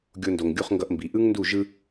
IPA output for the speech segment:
ɡʲo˧ndo˩ŋɡʲu˧χ ŋɡʌ˧ʔmbi˩ ʔɯ˥ŋndu˥˩ ʒɯ˧

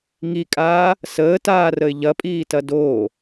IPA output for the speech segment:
ŋikʼaː | səːtaːrəɪ̯ ʎɐpʼiːtɐ doː

